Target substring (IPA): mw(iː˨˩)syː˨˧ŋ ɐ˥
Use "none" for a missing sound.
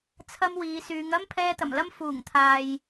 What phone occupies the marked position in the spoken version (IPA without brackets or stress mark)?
iː˨˧